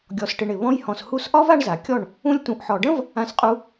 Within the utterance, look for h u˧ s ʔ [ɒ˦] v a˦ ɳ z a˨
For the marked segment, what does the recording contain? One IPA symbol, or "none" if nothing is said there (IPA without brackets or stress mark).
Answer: ɒ˦